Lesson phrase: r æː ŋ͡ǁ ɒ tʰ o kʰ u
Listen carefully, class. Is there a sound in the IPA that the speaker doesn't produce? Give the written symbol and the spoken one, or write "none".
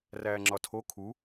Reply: none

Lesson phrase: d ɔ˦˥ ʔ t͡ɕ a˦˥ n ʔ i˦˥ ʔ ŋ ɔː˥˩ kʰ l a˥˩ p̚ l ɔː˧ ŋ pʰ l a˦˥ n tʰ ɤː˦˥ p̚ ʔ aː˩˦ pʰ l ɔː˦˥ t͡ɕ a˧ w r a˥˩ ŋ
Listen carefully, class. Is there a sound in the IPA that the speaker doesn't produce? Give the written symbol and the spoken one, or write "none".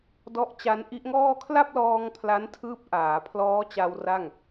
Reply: ɤː˦˥ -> ɯː˦˥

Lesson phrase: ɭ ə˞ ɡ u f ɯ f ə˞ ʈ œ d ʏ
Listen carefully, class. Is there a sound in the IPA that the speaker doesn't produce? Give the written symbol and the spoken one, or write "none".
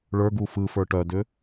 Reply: none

